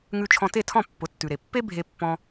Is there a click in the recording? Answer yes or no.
no